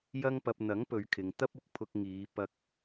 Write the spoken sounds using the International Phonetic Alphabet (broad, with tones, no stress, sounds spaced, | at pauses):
j ɐ˧ ŋ p ɐ˨ p̚ n̪ ɐ˨˥ ŋ p ɵ˨˧ ɥ kʰ ɪ˨ ŋ t̪ ɐ˥ p̚ ʊ˨ k̚ pʰ ʊ˧ k̚ ŋ iː˨˧ p ɐ˧ k̚